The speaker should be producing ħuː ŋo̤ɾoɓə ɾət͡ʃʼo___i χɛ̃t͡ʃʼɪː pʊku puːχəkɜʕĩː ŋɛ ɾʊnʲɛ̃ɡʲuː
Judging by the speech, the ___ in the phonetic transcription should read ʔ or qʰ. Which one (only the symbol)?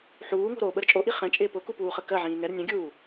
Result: ʔ